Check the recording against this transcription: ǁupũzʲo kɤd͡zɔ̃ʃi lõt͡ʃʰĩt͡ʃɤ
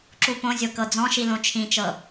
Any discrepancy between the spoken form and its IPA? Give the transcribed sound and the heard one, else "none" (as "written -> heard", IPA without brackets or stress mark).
ũ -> õ